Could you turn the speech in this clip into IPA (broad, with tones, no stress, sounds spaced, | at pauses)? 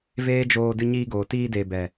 v eː˦ d͡ʒ oː˧ d ɨ˧ ɲ iː˧ ɡ oː˨ t iː˧ d eː˨ b ɛ˨